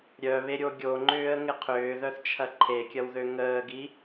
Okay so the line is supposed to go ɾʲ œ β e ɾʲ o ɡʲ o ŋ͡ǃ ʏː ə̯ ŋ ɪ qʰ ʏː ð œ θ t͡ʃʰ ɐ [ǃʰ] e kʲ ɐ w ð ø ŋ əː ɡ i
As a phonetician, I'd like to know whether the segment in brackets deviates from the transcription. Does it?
no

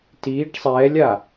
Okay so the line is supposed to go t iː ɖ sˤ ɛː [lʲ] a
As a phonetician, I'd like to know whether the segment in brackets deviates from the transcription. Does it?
no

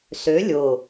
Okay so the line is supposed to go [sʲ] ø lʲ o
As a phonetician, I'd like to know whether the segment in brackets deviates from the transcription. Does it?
yes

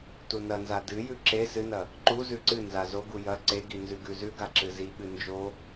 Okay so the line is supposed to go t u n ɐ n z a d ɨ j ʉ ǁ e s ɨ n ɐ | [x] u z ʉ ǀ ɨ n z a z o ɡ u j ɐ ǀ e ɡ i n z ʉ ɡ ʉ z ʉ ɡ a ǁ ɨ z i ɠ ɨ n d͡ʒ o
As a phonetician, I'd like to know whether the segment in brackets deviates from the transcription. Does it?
yes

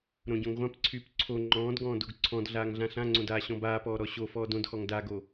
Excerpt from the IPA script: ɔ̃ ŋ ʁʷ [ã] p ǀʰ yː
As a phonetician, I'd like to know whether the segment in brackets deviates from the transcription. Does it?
no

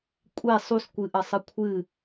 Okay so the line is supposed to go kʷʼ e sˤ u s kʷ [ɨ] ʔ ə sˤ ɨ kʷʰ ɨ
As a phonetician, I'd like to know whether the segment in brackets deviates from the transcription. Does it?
no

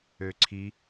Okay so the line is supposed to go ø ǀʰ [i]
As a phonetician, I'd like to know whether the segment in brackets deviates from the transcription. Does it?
no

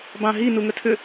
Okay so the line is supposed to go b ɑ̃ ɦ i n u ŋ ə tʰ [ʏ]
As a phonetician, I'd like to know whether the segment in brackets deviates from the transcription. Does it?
no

